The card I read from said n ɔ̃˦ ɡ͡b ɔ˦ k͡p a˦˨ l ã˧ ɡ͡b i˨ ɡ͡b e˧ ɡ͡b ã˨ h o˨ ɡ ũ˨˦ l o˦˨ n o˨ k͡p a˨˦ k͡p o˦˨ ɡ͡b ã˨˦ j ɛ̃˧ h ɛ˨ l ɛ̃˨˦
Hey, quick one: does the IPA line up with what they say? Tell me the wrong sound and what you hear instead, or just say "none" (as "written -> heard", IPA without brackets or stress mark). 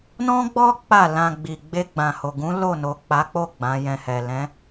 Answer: none